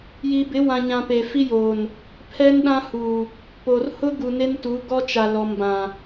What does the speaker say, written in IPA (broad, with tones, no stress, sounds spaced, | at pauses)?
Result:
j iː˨ b ɪ˨˦ w ã˨ ɲ ã˨ p e˨ f i˦ j oː˨ n | pʰ ɛ˦ n ɗ ã˦ h u˨ | p o˨ r h ʊ˦ ɡ u˨ n e˦ n t u˨˦ ɡ ɔ˦ t͡ʃ a˨ l ɔ˨ m b ã˨